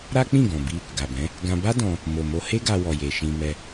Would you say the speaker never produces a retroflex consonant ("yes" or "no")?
yes